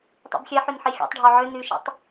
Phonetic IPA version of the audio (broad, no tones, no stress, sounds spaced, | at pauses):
tˤ ḭ b xʲ ɛ ħ y n ħ i xʲ ɔ̰ tˤ ɖʱ ɔ ʕ ʏ n y ʃ ḭ tˤ